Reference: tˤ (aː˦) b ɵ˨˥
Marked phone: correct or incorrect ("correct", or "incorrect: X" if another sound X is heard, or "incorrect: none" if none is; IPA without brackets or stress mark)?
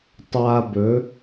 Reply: correct